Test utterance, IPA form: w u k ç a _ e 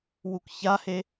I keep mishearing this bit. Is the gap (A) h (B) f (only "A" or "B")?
A